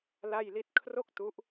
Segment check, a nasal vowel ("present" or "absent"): absent